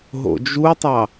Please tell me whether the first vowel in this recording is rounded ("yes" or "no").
yes